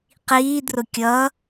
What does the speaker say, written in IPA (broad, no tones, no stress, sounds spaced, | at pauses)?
q iː d r ʊ kʲ ʌ